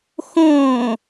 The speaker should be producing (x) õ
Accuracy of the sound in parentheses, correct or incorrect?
correct